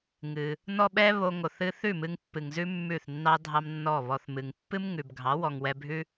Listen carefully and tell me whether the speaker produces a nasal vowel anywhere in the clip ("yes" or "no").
no